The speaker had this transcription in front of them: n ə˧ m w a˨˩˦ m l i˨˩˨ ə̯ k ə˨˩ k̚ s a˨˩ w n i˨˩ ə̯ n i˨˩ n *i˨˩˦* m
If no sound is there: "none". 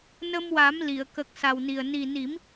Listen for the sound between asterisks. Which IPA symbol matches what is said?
i˨˩˦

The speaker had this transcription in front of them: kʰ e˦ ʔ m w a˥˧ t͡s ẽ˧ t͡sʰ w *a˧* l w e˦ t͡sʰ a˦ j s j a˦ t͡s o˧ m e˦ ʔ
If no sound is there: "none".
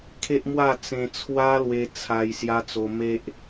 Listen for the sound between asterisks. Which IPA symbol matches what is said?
a˦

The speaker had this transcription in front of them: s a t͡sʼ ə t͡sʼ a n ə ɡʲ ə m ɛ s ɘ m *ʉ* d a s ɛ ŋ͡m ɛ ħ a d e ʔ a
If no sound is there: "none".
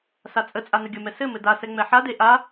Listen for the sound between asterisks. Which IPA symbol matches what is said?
ɘ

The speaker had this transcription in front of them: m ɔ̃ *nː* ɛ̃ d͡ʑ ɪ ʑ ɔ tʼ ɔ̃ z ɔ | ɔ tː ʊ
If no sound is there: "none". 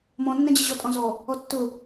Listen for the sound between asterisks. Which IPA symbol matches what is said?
nː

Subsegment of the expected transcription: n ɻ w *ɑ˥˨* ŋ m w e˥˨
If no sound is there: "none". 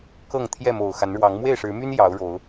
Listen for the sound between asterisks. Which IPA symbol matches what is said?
ɑ˨˦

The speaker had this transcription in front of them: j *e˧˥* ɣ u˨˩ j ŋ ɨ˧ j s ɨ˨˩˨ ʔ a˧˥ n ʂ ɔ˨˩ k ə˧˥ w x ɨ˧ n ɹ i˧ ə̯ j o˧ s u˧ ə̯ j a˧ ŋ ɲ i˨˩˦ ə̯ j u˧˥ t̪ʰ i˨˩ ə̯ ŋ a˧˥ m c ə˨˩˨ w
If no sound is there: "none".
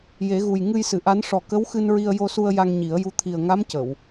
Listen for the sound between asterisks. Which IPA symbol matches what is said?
e˨˩˦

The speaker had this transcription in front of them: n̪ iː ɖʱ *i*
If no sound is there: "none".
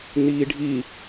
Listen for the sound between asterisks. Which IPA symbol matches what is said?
i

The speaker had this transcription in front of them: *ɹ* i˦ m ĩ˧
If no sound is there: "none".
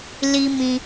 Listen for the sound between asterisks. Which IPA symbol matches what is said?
l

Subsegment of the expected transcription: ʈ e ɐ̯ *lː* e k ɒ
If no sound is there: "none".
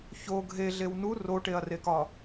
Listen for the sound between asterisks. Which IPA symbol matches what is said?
r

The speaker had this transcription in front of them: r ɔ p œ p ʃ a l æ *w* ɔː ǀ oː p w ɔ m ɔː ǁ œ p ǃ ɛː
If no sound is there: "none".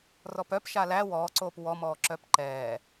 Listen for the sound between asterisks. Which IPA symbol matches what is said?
w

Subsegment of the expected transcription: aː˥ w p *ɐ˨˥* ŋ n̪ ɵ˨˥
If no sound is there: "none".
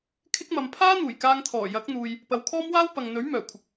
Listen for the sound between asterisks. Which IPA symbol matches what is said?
ɐ˨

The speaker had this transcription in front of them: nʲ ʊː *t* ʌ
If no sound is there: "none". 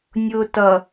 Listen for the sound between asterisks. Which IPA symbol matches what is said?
t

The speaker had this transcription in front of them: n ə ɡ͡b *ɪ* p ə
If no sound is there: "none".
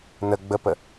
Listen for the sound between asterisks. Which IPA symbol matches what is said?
ə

